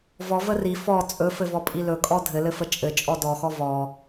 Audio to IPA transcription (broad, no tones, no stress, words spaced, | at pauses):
vɔ vəri fɔ t͡sʼɵfɘvɔ pʼilɵkʼɔ dʱɘlɘfə t͡ʃʼɘ t͡ʃʼɔdɔxɔ vɔ